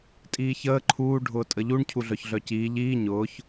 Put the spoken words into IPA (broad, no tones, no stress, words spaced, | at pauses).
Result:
tʼiːçəː ǃʰuː ɖʱʊːtʼəʎuɳ cʰuɮœçɮœciː ʎiː ɲʊːç